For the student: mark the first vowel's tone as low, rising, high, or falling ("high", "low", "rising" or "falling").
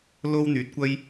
high